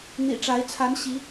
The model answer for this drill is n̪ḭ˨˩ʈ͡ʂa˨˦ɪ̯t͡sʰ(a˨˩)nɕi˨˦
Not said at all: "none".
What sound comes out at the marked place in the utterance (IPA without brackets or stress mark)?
a˨˦